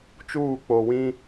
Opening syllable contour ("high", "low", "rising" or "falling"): falling